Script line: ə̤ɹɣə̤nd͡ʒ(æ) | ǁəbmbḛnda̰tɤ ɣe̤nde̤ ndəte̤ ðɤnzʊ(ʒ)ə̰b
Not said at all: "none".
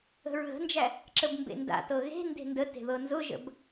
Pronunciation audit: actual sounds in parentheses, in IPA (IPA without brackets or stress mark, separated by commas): æ, ʒ